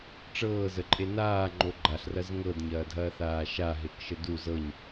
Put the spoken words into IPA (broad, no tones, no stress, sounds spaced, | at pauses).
ʈ͡ʂ ɤː z ə ǃʼ e n aː ŋ͡ǃ o ɡ͡ǃ a ɬ r ɐ z ŋ ɤ d ɲ ɐː dʱ ɐː θ aː ʃ a ɦ e k ʃ ə d u z ɤ ɲ